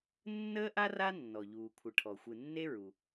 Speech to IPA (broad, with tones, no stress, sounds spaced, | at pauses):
nː əː˥ ʔ a˥ r a˥ nː ɔ˩ ʎ uː˩ kʷʰ ɨ˩ ʈʰ ɔ˩ xʷ ɨ˩ nː e˥ ɹ u˩